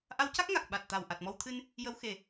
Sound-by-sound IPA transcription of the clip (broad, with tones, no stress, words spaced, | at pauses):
ʔa˧˥wca˦˥k̚ŋa˨˩k̚ ɓa˨˩t̚ t̪a˨˩w ʔa˨˩t̚mɔ˧wt̪ʰɨ˧n | jə˧˥wxe˨˩